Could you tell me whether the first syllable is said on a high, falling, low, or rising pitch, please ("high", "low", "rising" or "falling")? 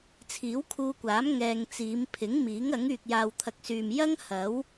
rising